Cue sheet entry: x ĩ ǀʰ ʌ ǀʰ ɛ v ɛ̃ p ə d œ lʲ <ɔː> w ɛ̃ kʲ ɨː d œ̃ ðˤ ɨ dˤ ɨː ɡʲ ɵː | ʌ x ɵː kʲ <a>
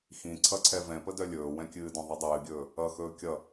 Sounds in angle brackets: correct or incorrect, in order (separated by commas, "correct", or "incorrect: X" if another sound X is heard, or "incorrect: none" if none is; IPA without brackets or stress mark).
incorrect: ɵː, incorrect: ʌ